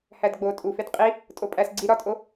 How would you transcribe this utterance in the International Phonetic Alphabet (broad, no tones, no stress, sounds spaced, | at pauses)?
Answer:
h æ d ɡ͡b o tʼ u f e d qʼ i | tʼ o pʼ æ s ɡ͡ǀ i ɾ ɒ tʼ o